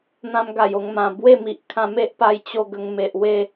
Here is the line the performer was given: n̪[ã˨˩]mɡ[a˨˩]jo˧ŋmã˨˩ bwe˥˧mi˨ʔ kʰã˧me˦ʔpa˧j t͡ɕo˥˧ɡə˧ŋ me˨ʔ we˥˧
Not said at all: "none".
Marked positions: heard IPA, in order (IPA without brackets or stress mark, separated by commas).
ã˦, a˨˩